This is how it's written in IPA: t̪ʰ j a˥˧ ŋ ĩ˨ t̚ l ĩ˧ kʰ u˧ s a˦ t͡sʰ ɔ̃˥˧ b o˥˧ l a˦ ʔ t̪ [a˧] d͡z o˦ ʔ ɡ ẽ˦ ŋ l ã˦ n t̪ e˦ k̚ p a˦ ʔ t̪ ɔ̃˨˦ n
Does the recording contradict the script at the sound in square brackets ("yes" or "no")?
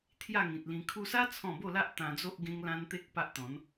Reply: yes